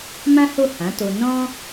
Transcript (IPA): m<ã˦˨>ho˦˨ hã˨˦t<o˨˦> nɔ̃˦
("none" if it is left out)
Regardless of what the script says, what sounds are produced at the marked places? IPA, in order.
ã˦, o˧

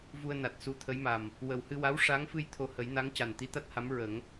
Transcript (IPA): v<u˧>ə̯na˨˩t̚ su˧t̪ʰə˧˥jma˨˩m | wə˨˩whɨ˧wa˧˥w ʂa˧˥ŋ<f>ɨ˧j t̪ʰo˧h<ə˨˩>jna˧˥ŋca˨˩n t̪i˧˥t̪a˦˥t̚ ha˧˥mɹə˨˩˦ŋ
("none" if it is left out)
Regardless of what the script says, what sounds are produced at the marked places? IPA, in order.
u˧, f, ə˨˩˦

